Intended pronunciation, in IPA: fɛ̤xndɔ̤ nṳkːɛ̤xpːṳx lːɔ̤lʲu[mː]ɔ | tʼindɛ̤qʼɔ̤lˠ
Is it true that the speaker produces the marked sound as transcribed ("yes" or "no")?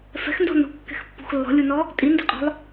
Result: no